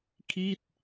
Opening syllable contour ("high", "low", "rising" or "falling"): falling